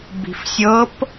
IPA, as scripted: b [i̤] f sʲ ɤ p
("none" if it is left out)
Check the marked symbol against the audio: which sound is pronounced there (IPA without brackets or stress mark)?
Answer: i̤